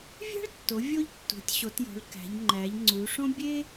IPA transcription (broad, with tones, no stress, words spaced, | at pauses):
vʲæ̤˥ɭtːo˩˧ vʲo˥ʎtːṳ˩˧tʲɕo˩˧tjo̤˩˧ɭ kæ̤˩˧ʎŋ͡ǃæ˩˧ʎŋ͡ǀu˩˧ ʂõ˥ bʲe˥